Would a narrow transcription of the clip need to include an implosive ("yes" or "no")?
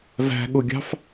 yes